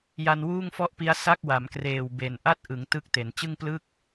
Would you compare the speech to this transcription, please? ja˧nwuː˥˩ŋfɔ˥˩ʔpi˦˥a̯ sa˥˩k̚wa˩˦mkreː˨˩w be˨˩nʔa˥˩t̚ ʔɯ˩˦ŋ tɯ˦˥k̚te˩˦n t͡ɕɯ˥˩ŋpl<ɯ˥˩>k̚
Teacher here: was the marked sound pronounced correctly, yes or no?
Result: yes